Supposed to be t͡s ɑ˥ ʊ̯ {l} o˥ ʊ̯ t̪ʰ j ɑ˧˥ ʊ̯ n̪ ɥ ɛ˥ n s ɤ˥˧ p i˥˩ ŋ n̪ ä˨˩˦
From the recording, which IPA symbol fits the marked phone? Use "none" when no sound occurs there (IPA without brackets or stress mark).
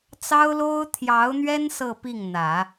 l